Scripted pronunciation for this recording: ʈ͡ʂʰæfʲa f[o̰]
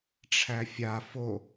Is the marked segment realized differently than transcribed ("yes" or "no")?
yes